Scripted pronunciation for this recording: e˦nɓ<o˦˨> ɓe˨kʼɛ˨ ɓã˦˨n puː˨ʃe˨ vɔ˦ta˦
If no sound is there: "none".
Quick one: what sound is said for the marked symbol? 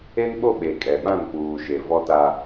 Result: o˦˨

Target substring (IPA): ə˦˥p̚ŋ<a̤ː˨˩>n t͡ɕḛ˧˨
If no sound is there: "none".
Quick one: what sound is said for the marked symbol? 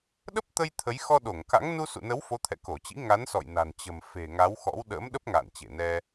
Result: a̰ː˧˨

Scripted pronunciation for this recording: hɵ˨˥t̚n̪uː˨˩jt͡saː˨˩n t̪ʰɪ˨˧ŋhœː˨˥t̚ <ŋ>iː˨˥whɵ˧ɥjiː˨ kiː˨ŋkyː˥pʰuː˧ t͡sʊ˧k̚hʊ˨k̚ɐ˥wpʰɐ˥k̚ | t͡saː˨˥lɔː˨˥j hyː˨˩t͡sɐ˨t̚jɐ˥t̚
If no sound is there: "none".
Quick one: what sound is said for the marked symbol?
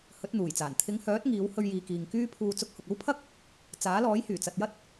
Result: ŋ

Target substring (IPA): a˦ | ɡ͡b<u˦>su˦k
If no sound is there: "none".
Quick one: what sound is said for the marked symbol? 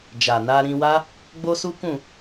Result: o˦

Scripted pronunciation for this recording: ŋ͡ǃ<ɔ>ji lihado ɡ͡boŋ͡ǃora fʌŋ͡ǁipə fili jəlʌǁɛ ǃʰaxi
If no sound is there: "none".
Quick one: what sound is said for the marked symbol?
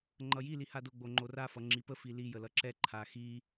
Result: ʌ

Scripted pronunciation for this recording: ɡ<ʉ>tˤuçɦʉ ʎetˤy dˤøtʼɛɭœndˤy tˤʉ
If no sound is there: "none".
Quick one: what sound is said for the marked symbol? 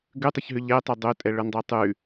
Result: ʉ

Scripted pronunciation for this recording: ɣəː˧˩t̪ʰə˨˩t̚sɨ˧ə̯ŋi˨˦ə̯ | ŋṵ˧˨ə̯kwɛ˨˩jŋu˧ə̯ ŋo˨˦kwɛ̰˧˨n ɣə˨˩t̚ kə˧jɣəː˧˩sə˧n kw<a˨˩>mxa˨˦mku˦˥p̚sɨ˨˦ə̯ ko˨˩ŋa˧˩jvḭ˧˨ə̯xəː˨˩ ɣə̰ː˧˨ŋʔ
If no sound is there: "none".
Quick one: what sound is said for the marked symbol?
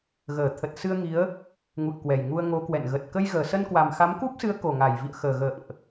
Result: a˨˩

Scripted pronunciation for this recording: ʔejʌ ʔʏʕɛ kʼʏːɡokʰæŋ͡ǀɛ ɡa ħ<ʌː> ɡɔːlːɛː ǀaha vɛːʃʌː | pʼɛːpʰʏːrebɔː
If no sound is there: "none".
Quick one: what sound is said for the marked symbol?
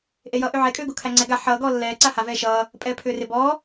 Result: ʌː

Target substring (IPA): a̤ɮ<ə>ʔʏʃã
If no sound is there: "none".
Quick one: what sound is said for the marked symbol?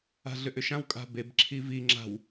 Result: ʏ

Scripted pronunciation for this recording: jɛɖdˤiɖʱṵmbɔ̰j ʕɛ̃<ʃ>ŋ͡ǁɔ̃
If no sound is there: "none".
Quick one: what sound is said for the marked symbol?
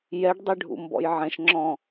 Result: ʃ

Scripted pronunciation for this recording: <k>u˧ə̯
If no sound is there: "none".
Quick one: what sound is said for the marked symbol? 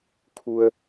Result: kʰ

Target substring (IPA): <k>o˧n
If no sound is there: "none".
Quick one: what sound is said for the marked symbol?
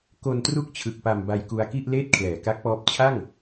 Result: k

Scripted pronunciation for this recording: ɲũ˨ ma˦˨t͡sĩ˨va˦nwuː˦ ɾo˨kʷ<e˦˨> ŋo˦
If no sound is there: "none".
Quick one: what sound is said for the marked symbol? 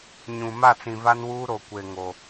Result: e˨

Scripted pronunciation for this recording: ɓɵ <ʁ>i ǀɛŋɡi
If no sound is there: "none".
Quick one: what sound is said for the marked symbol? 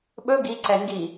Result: ɡ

